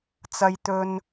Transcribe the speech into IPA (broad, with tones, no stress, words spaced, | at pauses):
t͡sɐ˥jt̪ɵ˥n